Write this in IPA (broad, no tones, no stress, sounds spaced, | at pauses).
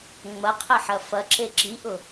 ŋ͡m ɐ qʰ ɘ ħ ɐ f ɐ ǁ e ǁ i ʔ ʊ